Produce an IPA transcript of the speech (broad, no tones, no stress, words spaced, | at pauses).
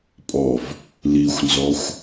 pʼɔv | lixʷnzɔxʷ